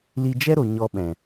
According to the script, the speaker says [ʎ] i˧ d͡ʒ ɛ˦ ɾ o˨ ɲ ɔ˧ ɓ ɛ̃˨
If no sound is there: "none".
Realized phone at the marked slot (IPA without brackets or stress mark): l